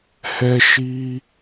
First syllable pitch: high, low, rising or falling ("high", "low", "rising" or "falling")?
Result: high